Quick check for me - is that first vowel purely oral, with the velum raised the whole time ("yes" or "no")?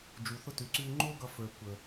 yes